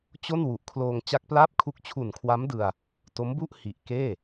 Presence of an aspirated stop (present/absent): present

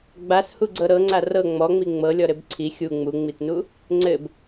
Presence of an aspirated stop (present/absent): present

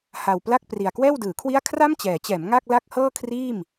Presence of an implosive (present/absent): absent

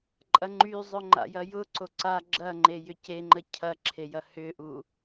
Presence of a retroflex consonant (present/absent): absent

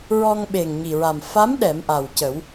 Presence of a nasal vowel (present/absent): absent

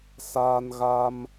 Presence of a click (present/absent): absent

